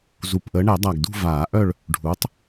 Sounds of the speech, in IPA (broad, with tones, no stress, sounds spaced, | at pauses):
z u˨˩ p ʔ əː˨˦ ɳ ɛ˨˩˦ dˤ a˨˩ ɡ d ṳ˦˨ v aː˨˩˦ ʔ œ˦˨ ɭ | ɖʱ uː˨˦ tˤ